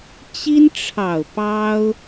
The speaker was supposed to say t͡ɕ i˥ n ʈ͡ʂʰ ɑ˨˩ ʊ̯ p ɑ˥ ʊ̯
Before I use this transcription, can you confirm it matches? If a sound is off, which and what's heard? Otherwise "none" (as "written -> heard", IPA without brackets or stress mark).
none